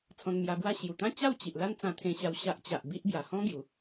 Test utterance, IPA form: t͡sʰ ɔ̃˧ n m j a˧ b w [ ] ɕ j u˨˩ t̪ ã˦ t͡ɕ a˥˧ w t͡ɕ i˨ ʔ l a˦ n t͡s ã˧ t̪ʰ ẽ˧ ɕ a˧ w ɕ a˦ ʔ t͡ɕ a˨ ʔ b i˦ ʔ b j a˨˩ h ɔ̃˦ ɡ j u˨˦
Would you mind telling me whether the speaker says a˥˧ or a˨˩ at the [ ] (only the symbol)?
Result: a˥˧